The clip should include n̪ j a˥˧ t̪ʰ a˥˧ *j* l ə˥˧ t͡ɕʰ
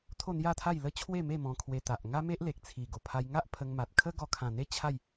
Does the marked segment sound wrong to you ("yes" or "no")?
no